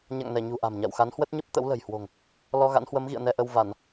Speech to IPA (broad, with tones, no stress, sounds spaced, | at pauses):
ɲ a̰˧˨ ŋ n ɛ˧˩ ɲ ṳ˨˩ ʔ a̤˨˩ m ɲ a̰˧˨ w x a˨˦ n h w ə˦˥ t̚ ɲ ə˦˥ p̚ t̪ ə̰˧˥ w l ə̤˨˩ j h w o̤˨˩ ŋ | l ɔ˧ ɣ a̰˧˥ n h w ə˨˦ m ɣ ḭ˧˨ ə̯ n ɛ˧ ʔ ə˧ w v a˧˩˨ n